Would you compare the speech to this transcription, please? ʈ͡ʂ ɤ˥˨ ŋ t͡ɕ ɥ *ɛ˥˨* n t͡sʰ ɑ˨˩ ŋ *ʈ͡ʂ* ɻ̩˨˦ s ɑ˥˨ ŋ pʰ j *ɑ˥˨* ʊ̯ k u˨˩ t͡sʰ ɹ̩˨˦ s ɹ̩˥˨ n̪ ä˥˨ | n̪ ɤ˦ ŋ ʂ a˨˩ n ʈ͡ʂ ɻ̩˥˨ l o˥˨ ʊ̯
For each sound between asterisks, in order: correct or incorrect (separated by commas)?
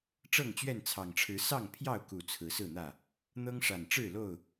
correct, incorrect, correct